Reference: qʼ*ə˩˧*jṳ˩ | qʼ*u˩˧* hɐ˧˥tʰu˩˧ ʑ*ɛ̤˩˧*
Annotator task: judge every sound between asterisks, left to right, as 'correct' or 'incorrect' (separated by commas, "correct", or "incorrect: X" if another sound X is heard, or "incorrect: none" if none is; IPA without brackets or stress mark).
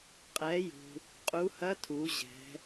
incorrect: ɛ˩˧, correct, correct